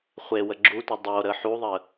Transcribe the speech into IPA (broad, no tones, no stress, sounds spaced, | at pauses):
χʷ e w ə ɡ͡ǁ u tʷ ɪ dˤ o ɾ ə ħ u ðˤ ə